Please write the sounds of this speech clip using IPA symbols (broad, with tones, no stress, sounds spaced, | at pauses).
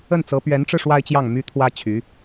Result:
ə˥˩ n t͡s ɤ˧˥ p ɥ ɛ˧˥ n ʈ͡ʂ ɻ̩˧ ʂ w a˥ ɪ̯ t͡ɕ j ɑ˥˩ ŋ m y˥ t̪ʰ w ä˥ t͡ɕʰ y˧˥